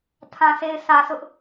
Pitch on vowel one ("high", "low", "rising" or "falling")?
low